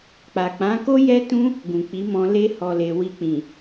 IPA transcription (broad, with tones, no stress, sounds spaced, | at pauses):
k͡p a˨ k͡p ã˨˦ k o˦ j ɛ˦ t ũ˦ | ɡ ũ˨ k͡p i˨˦ m ɔ̃˧ l e˧ h ɔ˨ l e˨ w i˨ k͡p ĩ˨